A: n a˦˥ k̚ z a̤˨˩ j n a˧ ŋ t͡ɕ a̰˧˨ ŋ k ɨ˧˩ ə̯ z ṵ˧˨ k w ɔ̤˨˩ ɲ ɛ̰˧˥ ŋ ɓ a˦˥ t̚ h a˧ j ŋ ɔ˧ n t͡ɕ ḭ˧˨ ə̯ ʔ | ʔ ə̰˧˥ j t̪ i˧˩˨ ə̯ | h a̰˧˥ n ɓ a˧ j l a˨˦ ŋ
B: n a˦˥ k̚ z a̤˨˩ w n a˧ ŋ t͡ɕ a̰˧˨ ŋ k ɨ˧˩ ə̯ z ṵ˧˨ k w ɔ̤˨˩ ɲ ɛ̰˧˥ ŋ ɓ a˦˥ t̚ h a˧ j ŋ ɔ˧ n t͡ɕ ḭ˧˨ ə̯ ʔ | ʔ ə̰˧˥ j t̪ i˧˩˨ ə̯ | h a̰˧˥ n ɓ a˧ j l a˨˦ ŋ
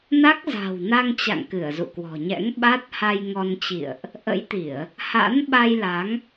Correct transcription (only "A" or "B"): B